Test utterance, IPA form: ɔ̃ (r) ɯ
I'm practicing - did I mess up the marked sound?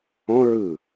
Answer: yes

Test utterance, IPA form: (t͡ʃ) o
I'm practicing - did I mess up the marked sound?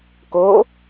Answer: yes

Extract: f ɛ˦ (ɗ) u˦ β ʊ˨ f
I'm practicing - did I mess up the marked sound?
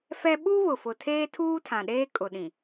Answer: yes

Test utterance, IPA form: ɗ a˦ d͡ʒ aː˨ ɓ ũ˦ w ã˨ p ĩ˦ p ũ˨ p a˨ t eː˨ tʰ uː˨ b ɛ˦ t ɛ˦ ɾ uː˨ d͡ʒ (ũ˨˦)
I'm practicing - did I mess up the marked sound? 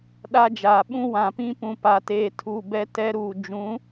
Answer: no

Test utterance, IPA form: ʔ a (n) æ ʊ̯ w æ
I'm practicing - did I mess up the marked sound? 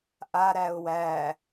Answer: yes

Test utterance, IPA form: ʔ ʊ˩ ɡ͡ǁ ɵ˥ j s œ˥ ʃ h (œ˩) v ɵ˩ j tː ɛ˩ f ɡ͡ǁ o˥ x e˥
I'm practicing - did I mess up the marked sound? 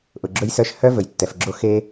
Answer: yes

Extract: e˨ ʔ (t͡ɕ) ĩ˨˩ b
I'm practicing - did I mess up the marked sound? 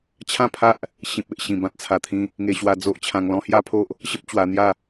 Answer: yes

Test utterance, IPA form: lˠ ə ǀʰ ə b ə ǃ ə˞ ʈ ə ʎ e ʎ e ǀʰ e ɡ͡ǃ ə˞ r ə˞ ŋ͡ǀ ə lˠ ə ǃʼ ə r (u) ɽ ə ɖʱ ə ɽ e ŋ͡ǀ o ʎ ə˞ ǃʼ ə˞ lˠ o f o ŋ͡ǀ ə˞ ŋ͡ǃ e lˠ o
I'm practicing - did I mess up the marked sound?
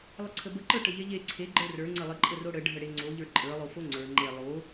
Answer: yes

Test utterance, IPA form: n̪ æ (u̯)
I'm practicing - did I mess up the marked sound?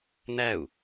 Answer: no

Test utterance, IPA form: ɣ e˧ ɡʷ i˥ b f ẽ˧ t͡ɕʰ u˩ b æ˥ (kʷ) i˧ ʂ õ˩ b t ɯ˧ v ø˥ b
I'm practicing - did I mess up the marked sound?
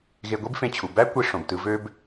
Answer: no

